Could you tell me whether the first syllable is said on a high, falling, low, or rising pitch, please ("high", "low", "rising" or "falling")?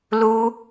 high